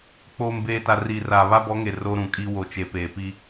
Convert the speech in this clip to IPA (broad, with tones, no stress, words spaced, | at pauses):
k͡poː˨mbeː˨ta˨ ri˨ra˨ βa˦bɔ˨˦ŋe˨ ro˦ɾũ˨kʼi˦ wo˨t͡ʃe˨peː˨pi˦